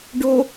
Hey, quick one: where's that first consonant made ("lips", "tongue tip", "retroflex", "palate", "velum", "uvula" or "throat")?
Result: retroflex